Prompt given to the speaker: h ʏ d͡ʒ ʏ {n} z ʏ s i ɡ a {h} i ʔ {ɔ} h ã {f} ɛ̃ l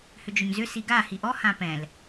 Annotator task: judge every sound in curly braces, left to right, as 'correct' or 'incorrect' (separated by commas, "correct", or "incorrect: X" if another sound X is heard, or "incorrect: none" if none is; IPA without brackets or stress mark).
incorrect: ɲ, correct, correct, incorrect: p